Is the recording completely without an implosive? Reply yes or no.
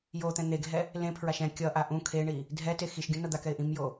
yes